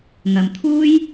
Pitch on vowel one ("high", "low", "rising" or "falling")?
low